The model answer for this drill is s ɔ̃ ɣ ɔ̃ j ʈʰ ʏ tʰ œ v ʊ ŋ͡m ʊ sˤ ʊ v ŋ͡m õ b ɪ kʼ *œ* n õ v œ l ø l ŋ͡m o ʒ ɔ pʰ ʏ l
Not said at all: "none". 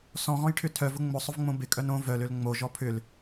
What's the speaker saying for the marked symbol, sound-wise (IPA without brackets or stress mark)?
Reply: œ